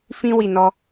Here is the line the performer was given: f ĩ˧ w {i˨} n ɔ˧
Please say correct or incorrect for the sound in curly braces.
correct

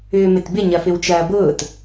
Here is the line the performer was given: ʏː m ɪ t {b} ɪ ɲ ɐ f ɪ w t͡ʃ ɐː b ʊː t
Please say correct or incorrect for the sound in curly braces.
correct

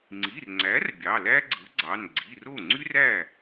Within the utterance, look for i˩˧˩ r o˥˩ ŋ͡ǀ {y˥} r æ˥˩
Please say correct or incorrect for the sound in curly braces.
correct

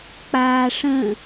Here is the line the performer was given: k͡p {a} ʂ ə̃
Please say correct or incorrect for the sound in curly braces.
incorrect: aː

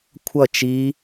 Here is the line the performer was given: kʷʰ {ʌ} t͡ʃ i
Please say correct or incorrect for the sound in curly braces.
correct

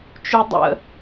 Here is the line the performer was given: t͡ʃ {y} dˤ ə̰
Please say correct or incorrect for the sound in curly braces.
correct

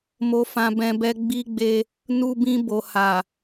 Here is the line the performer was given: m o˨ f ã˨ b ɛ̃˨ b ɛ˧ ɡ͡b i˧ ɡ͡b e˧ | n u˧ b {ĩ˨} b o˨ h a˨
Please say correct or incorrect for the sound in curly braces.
incorrect: ĩ˧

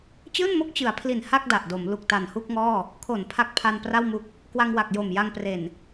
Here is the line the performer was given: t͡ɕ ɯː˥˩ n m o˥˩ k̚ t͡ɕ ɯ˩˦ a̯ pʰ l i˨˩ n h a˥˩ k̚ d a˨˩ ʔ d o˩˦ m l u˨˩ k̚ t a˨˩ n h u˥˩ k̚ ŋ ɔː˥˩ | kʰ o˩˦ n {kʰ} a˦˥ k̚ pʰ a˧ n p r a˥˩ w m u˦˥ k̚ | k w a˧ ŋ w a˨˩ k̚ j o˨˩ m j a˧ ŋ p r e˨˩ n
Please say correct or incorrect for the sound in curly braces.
incorrect: pʰ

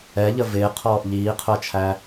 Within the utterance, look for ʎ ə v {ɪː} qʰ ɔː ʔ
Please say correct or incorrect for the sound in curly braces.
correct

